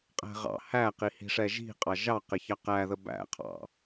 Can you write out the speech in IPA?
qʼ æ̤ ʁ ɑ̰ h æ q i h i̤ ʂ ɛ ʒ i̤ qʼ ɑ ʒ ɑ q ɪ ç ɑ q æ ð ə b æ̰ qʰ ɑ̰

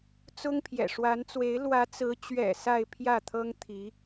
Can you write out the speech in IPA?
t͡s ʊ˥ ŋ pʰ j ɛ̰˨˩ ʂ w a˧˥ n t͡s w e˧˥ ɪ̯ l w ä˧˥ t͡s ɹ̩˧˥ t͡ɕ ɥ ɛ̰˨˩ s a˥˧ ɪ̯ pʰ j ä˥˩ t̪ʰ ɤ˥ ŋ t̪ʰ i˧˥

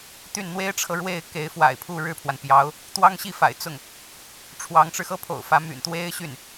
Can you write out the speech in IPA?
t̪ y˥˩ n n̪ w e˥ ɪ̯ ʈ͡ʂʰ ɤ˨ ɻ w e˥˩ ɪ̯ k e˧˥ ɪ̯ f w a̰˨˩ ɪ̯ pʰ u˥˧ ɻ ɻ̩˥˩ pʰ w a˩ n p j ɑ˧˥ ʊ̯ | t̪ w ɑ˥ ŋ ɕ i˥˩ f a̰˨˩ ɪ̯ t͡s ʊ˥˩ ŋ | ʈ͡ʂʰ w ɑ˧˥ ŋ ʈ͡ʂ ɻ̩˧ x ɤ˥ pʰ o̰˨˩ ʊ̯ f ä˧˥ m y̰˨˩ n t̪ w e˥ ɪ̯ ɕ y˥˩ n

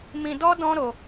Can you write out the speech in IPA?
m ĩ˧ d ɔ˦ d ɔ̃˦ ɾ o˧

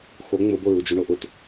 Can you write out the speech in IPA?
x o ŋ͡m ʊ b o ɹ u d͡ʒ u ɳ o ʔ ʊ t

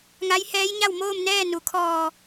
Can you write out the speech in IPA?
ŋ a˧˥ j h ɛː˧˥ j ɲ a˥˨ w m oː˥˨ m n ɛː˥˨ n u˩˧ kʰ ɔː˧˩

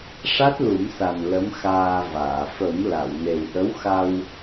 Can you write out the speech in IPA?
ʂ a˦˥ t̚ l u˨˩˦ m s a˨˩ n l ə˧˥ m x aː˧ v aː˨˩˨ f ə˨˩˦ m l a˨˩˨ w n e˨˩ w ʔ ə˧˥ w x a˧ w

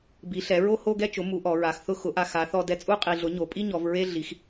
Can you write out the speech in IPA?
b i˩˥ ɬ ɛ˩˥ ɹ o˥˧ h o˥˧ ɡ ɛ˥˧ t͡ʃ ʊ˩˥ m u˩˥ ʔ ɔ˩˧ ɹ a˩˧ x θ ʊ˥˧ x ʊ˩˥ ʔ a˧ x a˩˥ θ ɔ˧ d ɛ˧ t͡sʼ u˥˧ qʼ i˨˩ ɮ ʊ˩˥ ɲ o˩˧ pʼ i˥˧ ɲ ɔ˩˧ v ɹ e˥˧ ɮ i˩˧ x

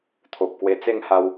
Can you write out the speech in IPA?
t̪ʰ o˨ p̚ k w e˧ t͡s e˥˧ ŋ h a˧ w

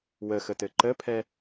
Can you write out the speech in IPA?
w ə x ə t ɘ ǃ ə pʰ ɛ

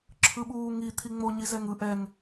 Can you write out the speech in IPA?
ǁʰ ɯ ɓ uː ŋ i t̪ʰ i ŋ͡m o ɲ i z ɛ ŋ ɯ ʔ ɛ ŋ

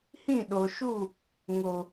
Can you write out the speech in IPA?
h ĩ˦˨ ɗ o˨ ʃ u˦˨ | ŋ o˨

